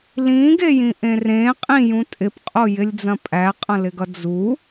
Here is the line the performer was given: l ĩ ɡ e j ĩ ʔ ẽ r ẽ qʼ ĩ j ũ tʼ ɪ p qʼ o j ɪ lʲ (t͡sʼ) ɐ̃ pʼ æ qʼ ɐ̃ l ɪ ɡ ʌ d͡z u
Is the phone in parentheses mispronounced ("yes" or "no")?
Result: yes